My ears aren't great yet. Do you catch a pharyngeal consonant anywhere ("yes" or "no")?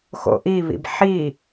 yes